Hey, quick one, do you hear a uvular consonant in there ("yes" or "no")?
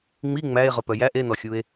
yes